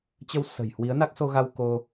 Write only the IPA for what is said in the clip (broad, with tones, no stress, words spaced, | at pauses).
t͡ɕə˧wsə̤˨˩j hwi˨˦ə̯na˦˥k̚so˧ɣa˧w ko˧